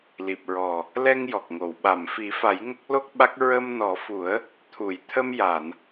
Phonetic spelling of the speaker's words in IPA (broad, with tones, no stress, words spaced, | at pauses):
li˨˩p̚ɹɔ˨˩ | lɛ˧ŋjɔ˨˩k̚ŋo˨˩˨w ɓa˨˩˨mfi˨˩˦fa˨˩˦j ŋə˦˥k̚lo˦˥k̚ɓa˦˥k̚ ɹə˧mnɔ˨˩˦fu˨˩˦ə̯ | t̪ʰu˨˩˨j t̪ʰə˧mja˨˩˨n